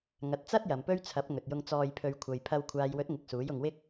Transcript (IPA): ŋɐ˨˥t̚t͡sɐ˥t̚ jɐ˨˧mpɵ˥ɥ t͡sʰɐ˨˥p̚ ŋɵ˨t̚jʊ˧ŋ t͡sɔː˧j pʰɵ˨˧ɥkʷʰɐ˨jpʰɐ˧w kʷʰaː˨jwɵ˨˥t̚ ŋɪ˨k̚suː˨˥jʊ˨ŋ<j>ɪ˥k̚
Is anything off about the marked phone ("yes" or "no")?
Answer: yes